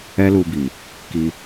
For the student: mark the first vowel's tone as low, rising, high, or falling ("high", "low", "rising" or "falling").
high